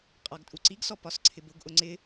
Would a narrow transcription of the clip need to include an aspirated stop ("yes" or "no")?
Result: yes